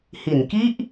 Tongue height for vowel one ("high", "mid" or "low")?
high